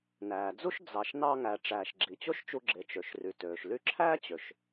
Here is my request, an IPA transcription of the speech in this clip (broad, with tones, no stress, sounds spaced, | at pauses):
n æː˩ d͡z u˥ ʃ d͡z ɑ˩ ʃ n ɑ˧ ŋ æ˩ ʈ͡ʂ æː˩ ʃ ɡ͡ǁ i˩ t͡ɕ o˥ ʃ t͡ʃ u˧ ɡ͡ǁ e˩ t͡ʃ ø˩ ʃ r y˩ t øː˩ ʃ l y˧ ǁʰ æː˥ t͡ɕ ø˩ ʃ